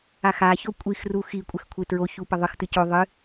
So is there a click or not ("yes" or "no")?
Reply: no